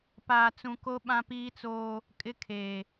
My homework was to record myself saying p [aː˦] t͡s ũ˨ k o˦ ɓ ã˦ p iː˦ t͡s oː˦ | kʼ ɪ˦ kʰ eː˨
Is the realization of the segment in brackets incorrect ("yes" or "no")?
yes